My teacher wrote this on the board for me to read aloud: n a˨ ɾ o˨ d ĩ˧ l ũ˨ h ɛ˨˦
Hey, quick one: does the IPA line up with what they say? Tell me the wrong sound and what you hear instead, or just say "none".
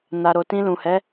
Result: d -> t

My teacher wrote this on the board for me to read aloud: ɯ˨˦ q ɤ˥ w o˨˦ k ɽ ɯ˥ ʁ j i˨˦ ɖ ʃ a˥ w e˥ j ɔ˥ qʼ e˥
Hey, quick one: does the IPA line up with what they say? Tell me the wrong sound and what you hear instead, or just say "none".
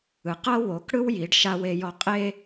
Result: ʁ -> w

